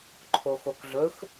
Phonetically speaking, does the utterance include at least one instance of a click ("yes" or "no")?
yes